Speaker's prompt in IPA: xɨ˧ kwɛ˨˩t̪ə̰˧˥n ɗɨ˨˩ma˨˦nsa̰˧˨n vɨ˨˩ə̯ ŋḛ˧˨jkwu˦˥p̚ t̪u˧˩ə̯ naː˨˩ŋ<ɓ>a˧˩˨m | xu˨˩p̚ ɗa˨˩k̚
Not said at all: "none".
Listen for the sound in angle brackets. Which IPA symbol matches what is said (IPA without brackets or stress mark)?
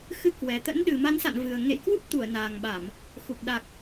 ɓ